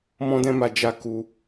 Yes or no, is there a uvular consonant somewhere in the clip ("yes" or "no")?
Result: no